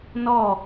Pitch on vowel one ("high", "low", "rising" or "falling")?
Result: falling